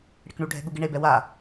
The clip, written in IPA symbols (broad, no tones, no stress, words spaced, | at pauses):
ɽɪkɳuɖʱɛ̤ ɠuɡɪɳebɛ wa